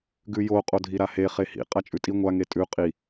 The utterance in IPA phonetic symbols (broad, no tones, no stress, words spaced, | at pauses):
ɡʉjo qʼodʱiɾahe χehḭ qʼat͡ʃʼʉtʼi ŋʷa ŋetʼʉ qʼi